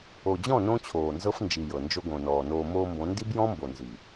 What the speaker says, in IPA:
o˨ d͡ʑ ɔ̃˦˨ n õ˦ t͡ɕʰ oː˨ n z ɤ˦ f n d͡ʒ i˨ j ɤ˨ n d͡ʒ o˧ ɡ õ˨ n ɔː˨ n oː˧ m oː˧ m b õ˨˦ n d i˦ b j ɔ̃˦ m b o˨ n z i˨

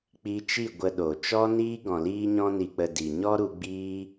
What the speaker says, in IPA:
k͡p i˧ t͡ʃ i˦˨ ɡʷ ə˧ ɗ o˨ t͡ʃ ɔ˦ n iː˦ ɡ ɔ̃˨ l iː˧ ɲ ɔ̃˧ n i˧ k͡p ə˧ d i˨ ɲ ɔ˦ ɾ u˧ ɡ͡b iː˦

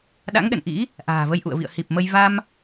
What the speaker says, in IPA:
ɗ a̰˧˥ ŋ ɗ ə̰˧˨ n ʔ ḭ˧˥ | ʔ a̤ː˨˩ v ə˧ j ʔ ṵ˧˨ ə̯ v ḭ˧˨ ə̯ h i˨˩ p̚ m ə˧ j v a˧ m

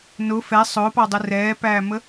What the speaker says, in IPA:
n ʊ f ɛ sˤ ʊː p ɑ dˤ ɪ r ɛː p æː m ə

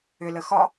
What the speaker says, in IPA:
ʏ l ə x ɒ

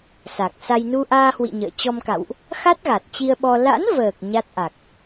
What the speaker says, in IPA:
s a˨˩ k̚ s a˧ j n u˧ ʔ aː˧ h w ḭ˧˨ ɲ ə̰ː˧˨ t͡ɕ ɔ˧ m k a̰˧˨ w ʔ | x a˦˥ t̚ ɣ a˨˩ t̚ t͡ɕ i˧ ə̯ ɓ ɔ˧ l a̰˧˥ n v əː˨˩ k̚ ɲ a˦˥ t̚ ʔ a˨˩ k̚

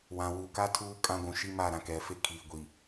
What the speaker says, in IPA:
w ã˨ w u˨ k a˦ tʰ uː˦ kʼ ã˦ ɡʷ ũ˨ ʃ i˦ m aː˦˨ ɾ ã˨ k ɛ˨ f e˦ kʰ iː˨ ɡʷ i˨

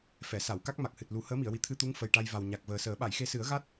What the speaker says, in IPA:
f ɛ˨˩˨ s a˨˩˨ w k a˦˥ k̚ m a˨˩ k̚ h ɨ˨˩ t̚ l u˨˩˦ h əː˧˥ m i˨˩˨ ə̯ w i˨˩ t̪ʰ ɨ˧ t̪ u˧˥ ŋ f ə˨˩ j ʈ a˧ j v a˨˩ w ɲ a˨˩ k̚ v əː˨˩ s əː˨˩˦ ɓ a˨˩˨ j x e˧ s ɨ˨˩˦ ə̯ ɣ a˦˥ t̚

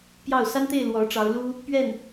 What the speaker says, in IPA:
p j ɑ˥˩ ʊ̯ s a˥ n t̪ e˥˩ ɪ̯ l w ɔ˧˥ ʈ͡ʂ ɑ˧˥ ʊ̯ l u˥ | p ɥ ɛ˥˩ n

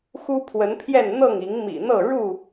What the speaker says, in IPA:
x u˦ pʰ w ə˨˦ n pʰ j ɛ˥˨ n n̪ ɤ˥˨ ŋ i˨˦ ŋ m ḭ˨˩ n̪ ɤ˥˨ ɻ u˥˨

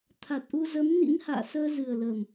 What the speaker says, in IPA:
t̪ʰ a˨˩ t̚ ʔ u˧ z ə˨˦ m n ḭ˧˥ n h a̰ː˧˨ s əː˧ z ɨ˨˩ ə̯ l əː˨˩ m

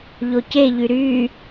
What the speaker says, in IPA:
ʎ o c e ʎ y ɾ y

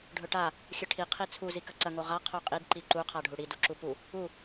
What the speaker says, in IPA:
ɖʱ ɵ ʈ a | xʲ ɨ ʈʰ i qʰ i t͡sʰ u z i k ɐ ǀ ɐ ŋ o ʁ a qʰ o qʼ i d ǃ i ǃ u qʰ a ɖʱ u ɽ i d u ǁ u p u | u

